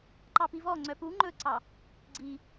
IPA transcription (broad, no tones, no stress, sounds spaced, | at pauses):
ǃ ɑ p i v ɔ ŋ͡ǀ œ p u ŋ͡ǃ ɵ ǀ ɑ | ɡ͡ǀ i